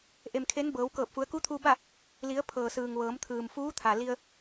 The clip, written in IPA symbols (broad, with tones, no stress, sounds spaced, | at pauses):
ʔ e˩ m kʰ e˧˥ n b ɤː˩˧ w k ɤː˧˩ p̚ f u˩˧ ə̯ k u˧˥ t̪ʰ uː˧ b a˥˨ | l i˩˧ ə̯ pʰ ɤː˩ s ɯː˩ ŋ ʋ ɤː˩˧ m t̪ʰ ɯː˩ m f uː˧˥ t̪ʰ a˩ l i˧ ə̯